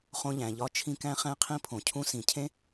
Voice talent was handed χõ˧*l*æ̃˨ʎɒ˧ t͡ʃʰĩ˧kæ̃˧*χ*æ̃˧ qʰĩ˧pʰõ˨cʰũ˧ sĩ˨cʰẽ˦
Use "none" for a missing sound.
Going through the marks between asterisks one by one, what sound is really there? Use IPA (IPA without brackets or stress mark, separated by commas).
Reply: ʎ, χ